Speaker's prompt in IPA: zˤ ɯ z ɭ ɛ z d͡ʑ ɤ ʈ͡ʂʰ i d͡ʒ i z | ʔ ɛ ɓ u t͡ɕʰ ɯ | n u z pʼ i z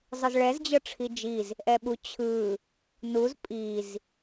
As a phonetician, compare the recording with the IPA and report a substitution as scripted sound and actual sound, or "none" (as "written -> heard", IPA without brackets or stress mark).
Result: none